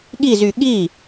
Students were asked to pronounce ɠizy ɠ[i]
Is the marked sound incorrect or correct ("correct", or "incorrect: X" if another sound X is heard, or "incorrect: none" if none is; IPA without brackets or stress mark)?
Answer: correct